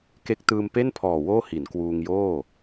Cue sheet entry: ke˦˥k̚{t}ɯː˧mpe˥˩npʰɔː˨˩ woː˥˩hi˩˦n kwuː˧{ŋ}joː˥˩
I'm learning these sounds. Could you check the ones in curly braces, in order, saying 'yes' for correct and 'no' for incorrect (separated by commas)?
yes, yes